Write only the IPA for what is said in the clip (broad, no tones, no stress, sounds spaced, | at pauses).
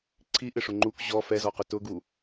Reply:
ǀʰ i ʔ ɪ ʂ ʊ ŋ͡ǃ u k ʑ ɔ f ɛ z ɔ q ʊ t ʊ ɡ u